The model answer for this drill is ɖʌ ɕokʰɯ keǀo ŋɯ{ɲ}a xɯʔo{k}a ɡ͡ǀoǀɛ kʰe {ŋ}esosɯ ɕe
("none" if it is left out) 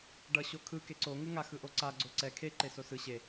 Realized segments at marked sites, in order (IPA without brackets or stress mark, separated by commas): ŋ, ǀ, ǃ